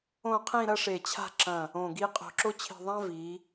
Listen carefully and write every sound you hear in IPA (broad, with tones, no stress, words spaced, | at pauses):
õ˥˧qʰĩ˥˧ɾɐ˥ ʂe˧˩t͡ɕʰa̤˥˧ǁɐ̃˧˩ | õ˧˩ɡi˥˧ qʼo̤˧ ǁo˥t͡ɕʰi̤˧˩ðˤã˥ vi˩˧